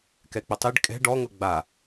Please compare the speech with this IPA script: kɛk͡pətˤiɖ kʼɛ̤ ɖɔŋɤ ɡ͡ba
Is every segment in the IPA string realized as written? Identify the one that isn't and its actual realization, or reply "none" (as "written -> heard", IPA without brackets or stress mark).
none